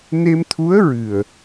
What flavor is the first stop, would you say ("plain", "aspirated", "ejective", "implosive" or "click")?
aspirated